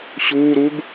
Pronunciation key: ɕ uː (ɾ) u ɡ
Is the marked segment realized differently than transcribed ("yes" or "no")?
no